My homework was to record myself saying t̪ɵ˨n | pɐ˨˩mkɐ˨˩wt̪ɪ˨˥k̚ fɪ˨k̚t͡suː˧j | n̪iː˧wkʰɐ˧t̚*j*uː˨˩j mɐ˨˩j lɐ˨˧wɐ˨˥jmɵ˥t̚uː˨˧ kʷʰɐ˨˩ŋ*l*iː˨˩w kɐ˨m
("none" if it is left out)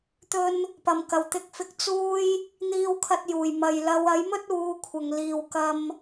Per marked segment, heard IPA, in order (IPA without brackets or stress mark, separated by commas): j, l